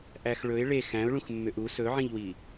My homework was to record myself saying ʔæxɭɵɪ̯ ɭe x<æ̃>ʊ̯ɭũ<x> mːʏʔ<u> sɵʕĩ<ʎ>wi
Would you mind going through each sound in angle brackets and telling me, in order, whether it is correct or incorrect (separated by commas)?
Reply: correct, correct, correct, correct